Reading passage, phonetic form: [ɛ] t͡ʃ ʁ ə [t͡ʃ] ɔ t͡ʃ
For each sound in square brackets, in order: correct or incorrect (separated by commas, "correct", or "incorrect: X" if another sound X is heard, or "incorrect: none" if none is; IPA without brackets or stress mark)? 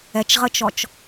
correct, correct